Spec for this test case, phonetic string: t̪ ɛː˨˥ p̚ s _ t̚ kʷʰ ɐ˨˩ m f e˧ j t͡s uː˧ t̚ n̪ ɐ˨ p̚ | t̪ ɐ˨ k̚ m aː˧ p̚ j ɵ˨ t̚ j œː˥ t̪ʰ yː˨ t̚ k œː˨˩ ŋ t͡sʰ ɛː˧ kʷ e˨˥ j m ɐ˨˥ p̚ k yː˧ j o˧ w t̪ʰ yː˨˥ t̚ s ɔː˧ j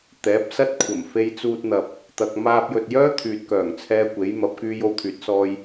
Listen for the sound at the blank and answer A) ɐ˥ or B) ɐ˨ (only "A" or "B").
A